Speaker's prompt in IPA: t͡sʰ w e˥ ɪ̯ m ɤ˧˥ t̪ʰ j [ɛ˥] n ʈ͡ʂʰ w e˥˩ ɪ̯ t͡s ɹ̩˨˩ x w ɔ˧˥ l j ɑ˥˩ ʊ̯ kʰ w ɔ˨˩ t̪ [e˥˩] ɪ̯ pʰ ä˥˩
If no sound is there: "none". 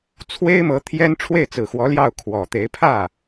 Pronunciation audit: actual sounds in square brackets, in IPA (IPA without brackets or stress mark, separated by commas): ɛ˥, e˧˥